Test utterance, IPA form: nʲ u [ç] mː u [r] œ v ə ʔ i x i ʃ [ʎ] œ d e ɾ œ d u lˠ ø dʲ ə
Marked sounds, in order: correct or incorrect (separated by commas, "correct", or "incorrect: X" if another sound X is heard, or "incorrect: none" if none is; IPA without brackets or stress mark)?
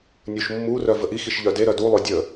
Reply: incorrect: ʃ, correct, correct